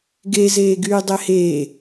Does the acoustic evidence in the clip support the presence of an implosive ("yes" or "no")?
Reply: no